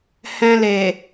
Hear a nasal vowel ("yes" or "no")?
yes